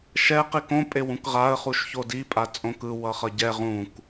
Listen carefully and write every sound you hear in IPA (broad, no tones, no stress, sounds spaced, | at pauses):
ʃ ɛ q i k õ pʼ e w ũ k ʁ a ə̯ χ u ʃ ç o d i pʼ a t͡sʼ õ k ɯ w ʌ χ ʌ ɟ ɛ ʁ ũ k